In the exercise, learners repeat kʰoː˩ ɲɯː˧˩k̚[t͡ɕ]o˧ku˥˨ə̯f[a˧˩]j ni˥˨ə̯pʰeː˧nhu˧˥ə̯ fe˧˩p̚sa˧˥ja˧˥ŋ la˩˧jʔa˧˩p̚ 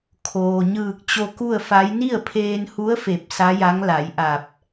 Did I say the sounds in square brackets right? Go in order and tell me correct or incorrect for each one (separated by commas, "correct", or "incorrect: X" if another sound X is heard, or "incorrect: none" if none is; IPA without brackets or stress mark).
correct, incorrect: a˧˥